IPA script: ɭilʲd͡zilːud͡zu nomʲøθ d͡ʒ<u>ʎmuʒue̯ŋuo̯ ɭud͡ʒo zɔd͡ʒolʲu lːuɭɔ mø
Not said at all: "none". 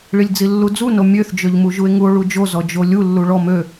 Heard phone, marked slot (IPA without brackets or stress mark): ø